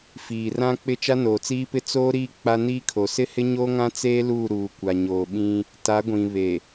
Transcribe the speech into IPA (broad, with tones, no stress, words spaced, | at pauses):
fiː˨rã˦k͡pɪ˦ t͡ʃa˦noː˨t͡siː˦pɪ˦ t͡soː˦ɾiː˦ k͡pa˦niː˦kʰo˨ sɪ˦hɪ˦ ɲo˦ŋã˦t͡seː˦ luː˦˨ɾuː˨ kʷa˨ɲoː˨ɓĩ˦ | ta˨˦ɡʷĩ˨βe˨